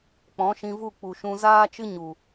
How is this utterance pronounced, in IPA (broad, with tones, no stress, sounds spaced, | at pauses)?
k͡p ɔ̃˨˦ ʃ ĩ˧ v u˦˨ k͡p u˨ ʃ ũ˧ z aː˦ t͡ʃ ɨ˦ ɲ u˨